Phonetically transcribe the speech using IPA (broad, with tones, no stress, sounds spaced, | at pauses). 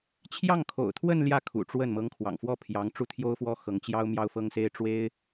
t͡ɕʰ j ɑ˥˩ ŋ kʰ o̰˨˩ ʊ̯ t̪ʰ w ə˥˧ n l j ä˥˩ kʰ ṵ˨˩ ʈ͡ʂ w ə˥˩ n m ɤ˧˥ ŋ kʰ w ɑ̰˨˩ ŋ f w ɔ˥˩ pʰ j ɑ˧˥ ŋ ʈ͡ʂ u˥˩ t̪ʰ j o˥ ʊ̯ f w ɔ˥ x ɤ˧˥ ŋ t͡ɕ j ɑ˥ ʊ̯ m j ɑ˥ ʊ̯ f ɤ˥ ŋ s e˥ ɪ̯ ʈ͡ʂ w e˥ ɪ̯